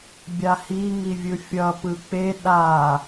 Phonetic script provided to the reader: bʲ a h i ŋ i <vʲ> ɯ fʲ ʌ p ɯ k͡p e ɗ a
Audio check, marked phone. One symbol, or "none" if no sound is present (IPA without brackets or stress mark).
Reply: vʲ